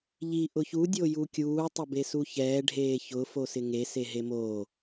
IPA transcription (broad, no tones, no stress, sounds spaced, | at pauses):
ʎ i ʔ ʊ ç u dʲ o j u kʲ uː tˤ ɪ b e s u ç ɛː ɖʱ eː ç ʊ f o s ɪ ŋ e s e ɦ e m oː